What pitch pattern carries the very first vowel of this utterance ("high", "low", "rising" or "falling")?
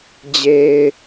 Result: low